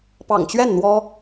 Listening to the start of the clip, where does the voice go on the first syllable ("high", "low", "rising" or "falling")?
low